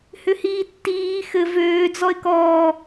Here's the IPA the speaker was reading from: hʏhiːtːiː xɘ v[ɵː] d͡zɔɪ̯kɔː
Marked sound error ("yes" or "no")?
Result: yes